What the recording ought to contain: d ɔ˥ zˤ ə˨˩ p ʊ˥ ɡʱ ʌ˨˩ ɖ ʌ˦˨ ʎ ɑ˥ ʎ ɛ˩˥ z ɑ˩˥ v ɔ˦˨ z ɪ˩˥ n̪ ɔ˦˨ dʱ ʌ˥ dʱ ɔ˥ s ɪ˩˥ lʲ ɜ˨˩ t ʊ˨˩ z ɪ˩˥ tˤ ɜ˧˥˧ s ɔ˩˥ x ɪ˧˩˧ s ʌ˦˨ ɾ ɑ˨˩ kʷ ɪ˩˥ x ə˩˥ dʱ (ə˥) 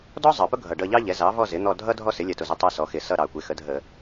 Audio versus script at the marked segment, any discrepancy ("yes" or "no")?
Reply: yes